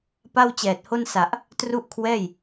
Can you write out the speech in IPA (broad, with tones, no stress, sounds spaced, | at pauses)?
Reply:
p a˥˩ w t͡ɕ ɛː˨˩ t̚ h o˥˩ n s a˨˩ ʔ | t r u˥˩ ʔ kʰ w ɛː˥˩ j